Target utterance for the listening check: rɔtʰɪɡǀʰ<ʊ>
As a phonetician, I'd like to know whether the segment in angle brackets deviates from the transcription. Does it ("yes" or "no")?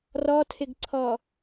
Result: yes